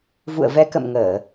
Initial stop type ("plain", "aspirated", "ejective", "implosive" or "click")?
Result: plain